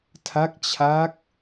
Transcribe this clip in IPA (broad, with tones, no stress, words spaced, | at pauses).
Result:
tʰa˦˥k̚t͡ɕʰa˦˥k̚